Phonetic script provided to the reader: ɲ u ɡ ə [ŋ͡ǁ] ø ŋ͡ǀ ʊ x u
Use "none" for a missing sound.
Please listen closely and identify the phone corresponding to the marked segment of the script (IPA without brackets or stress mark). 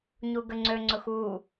ŋ͡ǀ